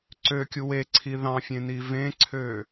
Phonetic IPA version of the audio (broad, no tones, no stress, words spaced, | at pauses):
ǀøkʲu weǀʰi ðɑ̃ fʲẽnivẽǀʰø